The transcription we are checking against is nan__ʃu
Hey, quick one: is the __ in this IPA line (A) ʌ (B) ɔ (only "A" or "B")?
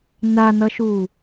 A